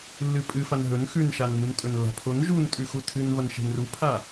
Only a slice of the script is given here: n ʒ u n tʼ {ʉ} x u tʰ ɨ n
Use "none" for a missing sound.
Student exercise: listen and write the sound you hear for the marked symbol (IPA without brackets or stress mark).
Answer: ʉ